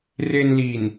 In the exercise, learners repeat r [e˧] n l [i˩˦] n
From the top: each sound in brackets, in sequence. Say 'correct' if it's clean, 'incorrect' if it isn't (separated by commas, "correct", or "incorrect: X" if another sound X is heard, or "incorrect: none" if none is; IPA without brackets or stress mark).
correct, incorrect: i˨˩